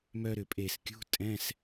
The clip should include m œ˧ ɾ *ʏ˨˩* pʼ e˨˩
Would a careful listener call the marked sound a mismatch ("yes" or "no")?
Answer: no